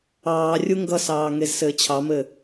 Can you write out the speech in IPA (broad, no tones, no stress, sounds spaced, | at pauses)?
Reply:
ɑː rʲ u ŋ ɡ ʌ s ɑː ŋ e z s ɘː t͡ɕʰ ɑ m ɘ